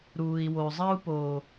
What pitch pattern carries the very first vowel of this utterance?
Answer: low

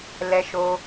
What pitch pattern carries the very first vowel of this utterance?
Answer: high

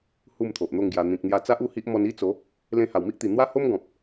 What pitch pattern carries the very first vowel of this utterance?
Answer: falling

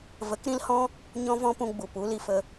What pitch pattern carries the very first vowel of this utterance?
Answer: rising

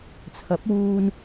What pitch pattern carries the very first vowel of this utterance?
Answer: rising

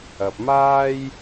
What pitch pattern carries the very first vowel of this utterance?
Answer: low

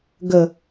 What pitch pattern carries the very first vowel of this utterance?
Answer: low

